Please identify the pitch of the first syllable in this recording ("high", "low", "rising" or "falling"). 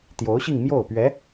rising